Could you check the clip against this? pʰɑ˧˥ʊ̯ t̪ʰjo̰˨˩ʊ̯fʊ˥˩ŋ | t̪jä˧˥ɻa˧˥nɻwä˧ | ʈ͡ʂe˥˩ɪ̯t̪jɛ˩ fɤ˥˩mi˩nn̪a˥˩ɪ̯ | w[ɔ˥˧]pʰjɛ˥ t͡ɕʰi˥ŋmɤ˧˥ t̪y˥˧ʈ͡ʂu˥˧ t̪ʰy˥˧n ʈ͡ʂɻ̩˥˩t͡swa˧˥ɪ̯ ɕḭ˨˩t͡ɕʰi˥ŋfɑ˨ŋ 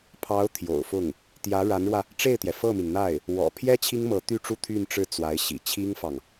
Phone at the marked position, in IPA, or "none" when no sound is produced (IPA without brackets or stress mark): ɔ̰˨˩